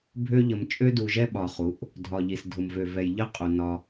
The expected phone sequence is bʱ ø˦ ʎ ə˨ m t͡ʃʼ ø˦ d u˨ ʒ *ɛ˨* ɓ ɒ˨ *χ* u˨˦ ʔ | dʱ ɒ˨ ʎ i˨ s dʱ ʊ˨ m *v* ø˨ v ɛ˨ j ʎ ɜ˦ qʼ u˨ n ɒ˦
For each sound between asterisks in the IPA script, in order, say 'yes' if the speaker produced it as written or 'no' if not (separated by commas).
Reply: no, yes, yes